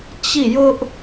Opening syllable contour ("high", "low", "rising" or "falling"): falling